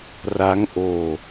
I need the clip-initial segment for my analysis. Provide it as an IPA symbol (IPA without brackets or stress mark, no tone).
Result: r